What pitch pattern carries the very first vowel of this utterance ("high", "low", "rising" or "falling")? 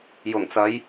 low